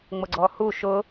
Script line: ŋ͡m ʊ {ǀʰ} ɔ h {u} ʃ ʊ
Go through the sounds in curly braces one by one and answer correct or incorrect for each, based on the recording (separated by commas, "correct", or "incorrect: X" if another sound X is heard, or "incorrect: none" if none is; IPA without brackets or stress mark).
incorrect: ɡ͡ǀ, correct